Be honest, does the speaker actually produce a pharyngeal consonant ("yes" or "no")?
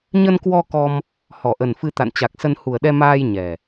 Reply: no